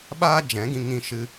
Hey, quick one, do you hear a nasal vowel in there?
yes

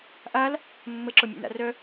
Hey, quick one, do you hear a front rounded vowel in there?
yes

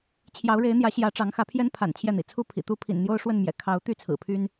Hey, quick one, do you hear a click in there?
no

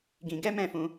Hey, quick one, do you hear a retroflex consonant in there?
no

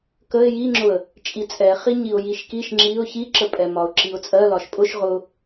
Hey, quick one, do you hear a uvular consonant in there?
yes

